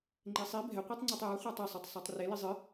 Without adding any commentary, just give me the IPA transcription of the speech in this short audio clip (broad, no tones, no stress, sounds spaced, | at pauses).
ŋ͡ǃ e sˤ i bʱ ɛ qʷ e tˤ ŋ͡ǀ o tˤ j a χʷ a tˤ ɛ sˤ e tˤ sˤ a tˤ r e l i zˤ ɨ